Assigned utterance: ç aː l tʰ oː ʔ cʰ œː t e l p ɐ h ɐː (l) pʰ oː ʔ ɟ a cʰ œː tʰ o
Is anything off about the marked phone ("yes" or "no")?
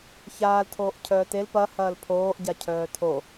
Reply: no